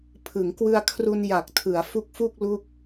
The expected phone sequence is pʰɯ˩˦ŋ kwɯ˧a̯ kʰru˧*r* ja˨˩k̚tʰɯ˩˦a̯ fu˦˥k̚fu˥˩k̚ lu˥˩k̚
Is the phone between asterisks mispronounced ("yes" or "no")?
yes